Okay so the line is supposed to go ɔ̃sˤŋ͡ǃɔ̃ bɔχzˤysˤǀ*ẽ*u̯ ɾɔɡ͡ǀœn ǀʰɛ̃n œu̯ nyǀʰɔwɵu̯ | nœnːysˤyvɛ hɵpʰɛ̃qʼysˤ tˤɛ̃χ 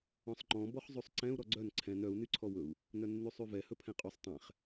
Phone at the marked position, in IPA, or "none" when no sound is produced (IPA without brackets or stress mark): ɛ̃